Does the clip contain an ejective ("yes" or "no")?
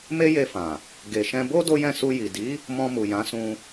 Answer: no